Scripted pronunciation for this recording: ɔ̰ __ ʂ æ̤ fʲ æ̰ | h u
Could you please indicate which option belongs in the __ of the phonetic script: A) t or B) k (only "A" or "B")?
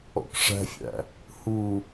B